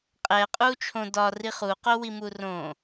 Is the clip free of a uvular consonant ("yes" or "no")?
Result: no